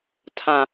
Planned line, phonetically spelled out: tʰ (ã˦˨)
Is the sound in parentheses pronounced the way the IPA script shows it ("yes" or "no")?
no